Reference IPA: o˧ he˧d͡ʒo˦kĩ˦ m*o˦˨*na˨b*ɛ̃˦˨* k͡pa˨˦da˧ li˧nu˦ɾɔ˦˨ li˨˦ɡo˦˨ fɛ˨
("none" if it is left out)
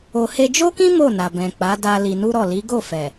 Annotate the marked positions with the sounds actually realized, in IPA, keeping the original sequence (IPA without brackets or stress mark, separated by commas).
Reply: o˦˨, ɛ̃˨